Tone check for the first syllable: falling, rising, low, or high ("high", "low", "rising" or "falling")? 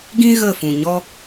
high